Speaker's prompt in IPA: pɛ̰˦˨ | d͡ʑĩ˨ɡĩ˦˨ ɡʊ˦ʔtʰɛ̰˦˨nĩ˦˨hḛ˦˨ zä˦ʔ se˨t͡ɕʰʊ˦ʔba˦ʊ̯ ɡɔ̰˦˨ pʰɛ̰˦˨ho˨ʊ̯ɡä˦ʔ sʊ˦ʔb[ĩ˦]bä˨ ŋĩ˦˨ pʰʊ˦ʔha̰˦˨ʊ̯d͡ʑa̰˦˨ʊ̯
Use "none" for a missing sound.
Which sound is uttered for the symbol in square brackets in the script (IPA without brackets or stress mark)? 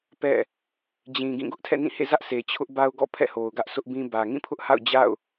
ĩ˦